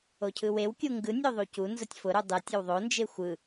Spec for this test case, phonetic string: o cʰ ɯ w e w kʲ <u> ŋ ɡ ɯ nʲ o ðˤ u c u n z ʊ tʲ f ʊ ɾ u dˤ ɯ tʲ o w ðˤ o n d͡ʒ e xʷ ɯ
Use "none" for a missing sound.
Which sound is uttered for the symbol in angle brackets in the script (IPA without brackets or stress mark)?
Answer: u